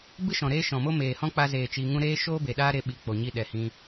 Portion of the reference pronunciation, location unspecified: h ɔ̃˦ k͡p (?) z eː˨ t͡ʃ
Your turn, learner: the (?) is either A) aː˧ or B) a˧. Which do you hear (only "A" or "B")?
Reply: B